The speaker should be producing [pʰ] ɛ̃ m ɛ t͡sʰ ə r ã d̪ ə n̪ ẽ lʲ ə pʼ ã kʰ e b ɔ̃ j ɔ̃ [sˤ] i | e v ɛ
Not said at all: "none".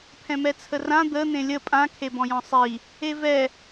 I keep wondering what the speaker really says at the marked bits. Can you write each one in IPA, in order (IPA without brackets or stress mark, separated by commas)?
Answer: pʰ, sˤ